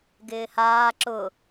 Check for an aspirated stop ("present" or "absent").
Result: absent